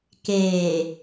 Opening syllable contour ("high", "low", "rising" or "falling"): low